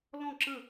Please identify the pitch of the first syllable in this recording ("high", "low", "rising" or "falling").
falling